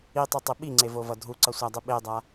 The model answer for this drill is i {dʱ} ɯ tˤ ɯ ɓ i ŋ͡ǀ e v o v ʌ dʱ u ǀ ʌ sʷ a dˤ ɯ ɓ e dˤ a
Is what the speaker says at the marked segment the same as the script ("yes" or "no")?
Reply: no